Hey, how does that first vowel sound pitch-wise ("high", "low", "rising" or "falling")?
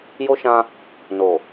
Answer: high